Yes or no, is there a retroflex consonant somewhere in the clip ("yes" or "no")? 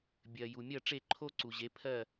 yes